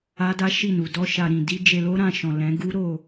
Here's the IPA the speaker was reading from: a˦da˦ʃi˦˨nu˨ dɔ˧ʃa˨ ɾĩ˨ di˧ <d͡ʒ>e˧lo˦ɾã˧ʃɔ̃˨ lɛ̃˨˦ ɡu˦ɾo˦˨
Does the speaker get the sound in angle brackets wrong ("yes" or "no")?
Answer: no